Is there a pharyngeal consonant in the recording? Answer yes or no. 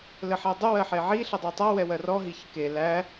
yes